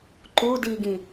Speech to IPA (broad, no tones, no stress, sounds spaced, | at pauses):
ǃ u d i ɡ ĩ